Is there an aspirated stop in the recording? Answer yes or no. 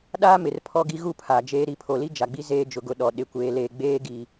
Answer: yes